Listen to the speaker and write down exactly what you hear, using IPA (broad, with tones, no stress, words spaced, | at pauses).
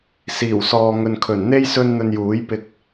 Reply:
siː˨˩wsɔː˨ ŋɵ˨nkʰɵ˨˩nn̪e˥j sɵ˥nn̪ɵ˧n juː˨˥j pɪ˧k̚